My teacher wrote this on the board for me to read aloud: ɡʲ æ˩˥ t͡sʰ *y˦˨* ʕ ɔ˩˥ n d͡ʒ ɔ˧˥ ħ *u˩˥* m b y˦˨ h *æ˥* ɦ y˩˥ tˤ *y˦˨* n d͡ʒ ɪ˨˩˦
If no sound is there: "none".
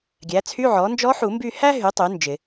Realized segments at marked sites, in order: y˧˥˧, u˨˩˦, æ˥, y˩˥

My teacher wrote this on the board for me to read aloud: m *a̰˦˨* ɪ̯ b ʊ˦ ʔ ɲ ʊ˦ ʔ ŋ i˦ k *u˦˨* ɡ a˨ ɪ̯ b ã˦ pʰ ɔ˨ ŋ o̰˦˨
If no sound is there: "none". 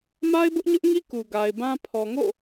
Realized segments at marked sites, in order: a˦, u˨

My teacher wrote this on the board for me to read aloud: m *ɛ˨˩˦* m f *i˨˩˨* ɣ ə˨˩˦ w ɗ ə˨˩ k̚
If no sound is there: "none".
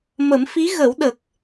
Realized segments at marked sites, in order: ə˨˩˦, i˧˥

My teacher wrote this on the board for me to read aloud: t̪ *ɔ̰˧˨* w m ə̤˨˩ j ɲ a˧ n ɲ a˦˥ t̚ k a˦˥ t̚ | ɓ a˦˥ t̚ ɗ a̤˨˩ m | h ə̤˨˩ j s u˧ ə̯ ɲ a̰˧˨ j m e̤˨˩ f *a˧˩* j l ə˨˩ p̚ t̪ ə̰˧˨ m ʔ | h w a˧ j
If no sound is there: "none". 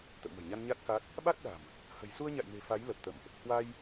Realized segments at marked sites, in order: ə̰˧˨, a˨˦

